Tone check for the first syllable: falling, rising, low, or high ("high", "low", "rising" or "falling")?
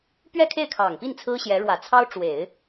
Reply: falling